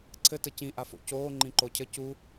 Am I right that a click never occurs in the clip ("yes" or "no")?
no